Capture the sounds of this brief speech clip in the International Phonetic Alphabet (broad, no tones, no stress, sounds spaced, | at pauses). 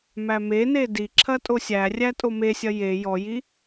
m æ m e n e d i ǁʰ ɐ tʼ o sʲ æ rʲ æ tʼ o m e sʲ ɐ j e j ɔ j i